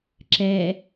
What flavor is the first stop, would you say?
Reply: click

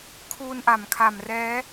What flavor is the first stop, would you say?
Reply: aspirated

